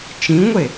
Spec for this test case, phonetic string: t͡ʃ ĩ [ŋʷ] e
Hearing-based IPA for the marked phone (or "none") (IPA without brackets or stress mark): ŋʷ